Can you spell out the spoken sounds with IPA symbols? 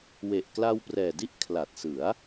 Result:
w e˨˩ ʔ k l a˧ w p r ɛː˨˩ d i˥˩ ʔ kʰ l a˨˩ t̚ s ɯ˩˦ a̯

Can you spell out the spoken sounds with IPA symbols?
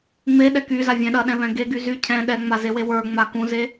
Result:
ŋ͡m e ɗ ɛ k y z a vʲ ɛ̃ ɗ ɐ ɗ ɛ̃ β ɛ̃ ɡ e ɡ y z y cʰ ɛ̃ ɗ ɛ ŋ͡m a z e w e w ə˞ ŋ͡m a k ũ z e

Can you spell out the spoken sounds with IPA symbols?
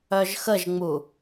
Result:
œ ʒ x ə ʒ ŋ͡m u

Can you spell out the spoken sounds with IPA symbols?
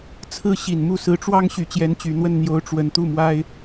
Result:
t͡sʰ ɹ̩˥ ɕ i˨˩ n m u˥˩ s ɹ̩˧˥ ʈ͡ʂ w ɑ˥ ŋ ɕ y˨˩ t͡ɕ j ɛ˧˥ n t͡ɕ y˨˩ n̪ w ə˥˩ n n̪ j o˧˥ ʊ̯ ʈ͡ʂ w ə˨˩ n t̪ u˥˩ m w a˥ ɪ̯

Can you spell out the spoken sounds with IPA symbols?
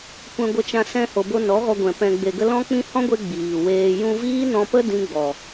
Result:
kʷ ɛ̃˧ ɡʷ ə˧ t͡ʃ ã˧ s ɛ̃˧ h o˨ b o˧ n ɔ˨˦ ɣ ɔ˧ ɡʷ ɛ̃˨ p ɛ̃˨ ɡ͡b e˨ ɡ ə˧ l ɔ̃˦ k͡p ĩ˦ h ɔ̃˦ ɡʷ e˧ ɡ͡b iː˨ w eː˧ j ũ˧ v iː˦ n ɔ̃˧ p ə˦ d ĩ˦ ɡ͡b ɔ˨

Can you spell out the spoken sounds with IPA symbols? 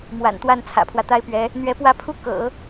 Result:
m w a̰˨˩ n t̪ w a˥˩ n t͡sʰ ä̰˨˩ pʰ w ä˦ t̪ a˥ ɪ̯ p ɥ ɛ˧˥ | n̪ ɥ ɛ˧˥ p w ä˥˩ pʰ u˥ k ɤ̰˨˩˦

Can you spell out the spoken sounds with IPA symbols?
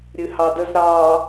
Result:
ɾʲ ɨ h ɑ d ə z ɾ ɑ

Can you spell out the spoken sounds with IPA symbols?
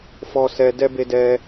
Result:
f ɔ˧ s ɛ˧ d ɛ˧ b e˧ d ɛ˧

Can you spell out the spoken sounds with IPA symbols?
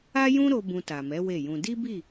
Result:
a˦ j ũ˦ ɾ o˧ b ũ˧ t a˨ m ɛ˨˦ w e˦˨ j ũ˧ d i˦ b i˦˨

